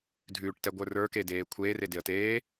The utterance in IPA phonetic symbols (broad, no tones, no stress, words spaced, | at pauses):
dʱʉːʈtɛɡʷə˞ rə˞kedeː kʷʰeːredeə̯ teː